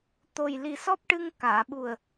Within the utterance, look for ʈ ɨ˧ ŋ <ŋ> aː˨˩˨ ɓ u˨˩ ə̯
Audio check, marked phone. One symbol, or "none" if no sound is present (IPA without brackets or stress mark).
k